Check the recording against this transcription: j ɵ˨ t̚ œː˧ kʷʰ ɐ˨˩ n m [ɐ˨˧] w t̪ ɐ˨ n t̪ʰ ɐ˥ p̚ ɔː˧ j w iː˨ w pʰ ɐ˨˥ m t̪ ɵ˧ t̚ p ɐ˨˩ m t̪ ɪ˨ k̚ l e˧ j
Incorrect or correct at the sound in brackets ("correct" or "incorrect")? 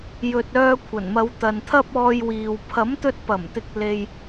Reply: correct